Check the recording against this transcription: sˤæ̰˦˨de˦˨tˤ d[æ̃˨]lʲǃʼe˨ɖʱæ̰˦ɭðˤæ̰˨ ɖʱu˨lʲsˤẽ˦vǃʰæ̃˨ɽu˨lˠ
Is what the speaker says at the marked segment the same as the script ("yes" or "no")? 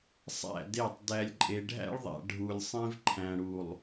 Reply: no